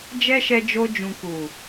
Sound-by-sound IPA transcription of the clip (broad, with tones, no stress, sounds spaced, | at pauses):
d͡ʒ ɛ˦ ʃ ɛ˧ d͡ʒ o˧ d͡ʒ ũ˨ k u˨